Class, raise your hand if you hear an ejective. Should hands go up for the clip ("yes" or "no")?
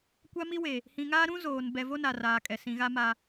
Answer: yes